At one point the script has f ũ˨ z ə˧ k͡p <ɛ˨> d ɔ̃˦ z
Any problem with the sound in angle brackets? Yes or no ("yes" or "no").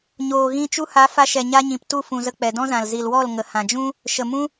no